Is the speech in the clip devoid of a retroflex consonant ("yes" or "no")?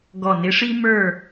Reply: no